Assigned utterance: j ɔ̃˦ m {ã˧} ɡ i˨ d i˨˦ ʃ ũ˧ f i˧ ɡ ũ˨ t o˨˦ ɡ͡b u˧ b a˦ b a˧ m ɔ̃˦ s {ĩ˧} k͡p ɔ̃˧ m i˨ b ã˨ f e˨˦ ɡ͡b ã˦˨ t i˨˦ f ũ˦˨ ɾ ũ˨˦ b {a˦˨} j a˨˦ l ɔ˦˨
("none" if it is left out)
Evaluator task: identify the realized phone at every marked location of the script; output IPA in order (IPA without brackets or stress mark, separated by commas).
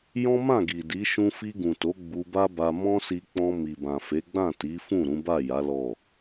ã˦˨, i˧, a˦˨